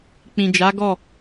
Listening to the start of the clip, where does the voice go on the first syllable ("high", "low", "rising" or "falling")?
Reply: low